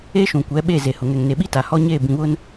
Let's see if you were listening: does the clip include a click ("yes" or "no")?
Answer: no